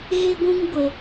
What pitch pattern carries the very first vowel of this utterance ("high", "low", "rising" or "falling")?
high